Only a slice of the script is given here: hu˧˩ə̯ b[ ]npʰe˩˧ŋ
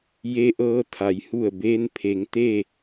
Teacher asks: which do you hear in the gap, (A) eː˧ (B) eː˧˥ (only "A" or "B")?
A